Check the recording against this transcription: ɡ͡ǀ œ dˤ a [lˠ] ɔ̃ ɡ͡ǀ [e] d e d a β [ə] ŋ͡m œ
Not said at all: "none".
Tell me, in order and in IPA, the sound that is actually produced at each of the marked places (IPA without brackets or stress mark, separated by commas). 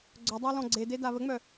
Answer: l, e, ə